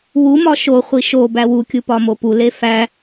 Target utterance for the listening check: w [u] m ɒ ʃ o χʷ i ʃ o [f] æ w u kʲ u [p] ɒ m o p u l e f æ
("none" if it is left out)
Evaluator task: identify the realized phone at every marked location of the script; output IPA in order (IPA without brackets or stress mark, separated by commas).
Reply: u, b, p